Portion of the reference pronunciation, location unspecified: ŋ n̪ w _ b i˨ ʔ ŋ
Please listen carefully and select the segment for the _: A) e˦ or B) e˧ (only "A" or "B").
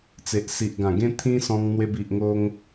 B